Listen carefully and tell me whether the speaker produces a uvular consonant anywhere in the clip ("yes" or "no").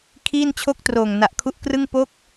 no